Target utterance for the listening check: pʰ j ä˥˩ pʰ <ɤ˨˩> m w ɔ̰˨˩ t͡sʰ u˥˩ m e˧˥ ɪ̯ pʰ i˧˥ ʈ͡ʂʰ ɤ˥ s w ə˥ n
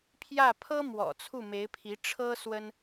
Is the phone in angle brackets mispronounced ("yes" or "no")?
yes